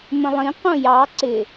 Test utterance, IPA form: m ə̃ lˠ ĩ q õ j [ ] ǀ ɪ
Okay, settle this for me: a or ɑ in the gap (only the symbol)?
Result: ɑ